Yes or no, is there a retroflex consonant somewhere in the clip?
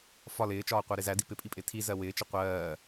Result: no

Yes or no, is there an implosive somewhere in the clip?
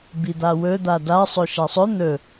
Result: no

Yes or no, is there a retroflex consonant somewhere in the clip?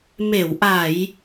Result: no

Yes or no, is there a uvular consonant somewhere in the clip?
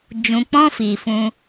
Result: no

